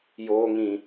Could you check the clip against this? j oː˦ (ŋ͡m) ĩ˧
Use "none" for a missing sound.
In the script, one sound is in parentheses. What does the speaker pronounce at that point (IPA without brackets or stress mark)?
ŋ